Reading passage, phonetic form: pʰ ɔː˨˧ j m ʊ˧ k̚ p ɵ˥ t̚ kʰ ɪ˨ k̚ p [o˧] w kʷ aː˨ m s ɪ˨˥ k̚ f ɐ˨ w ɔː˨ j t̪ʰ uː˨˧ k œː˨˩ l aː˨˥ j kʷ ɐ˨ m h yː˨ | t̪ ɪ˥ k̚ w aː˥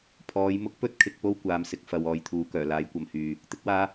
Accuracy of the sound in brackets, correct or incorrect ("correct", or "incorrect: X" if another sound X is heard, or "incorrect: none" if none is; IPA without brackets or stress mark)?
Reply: incorrect: o˥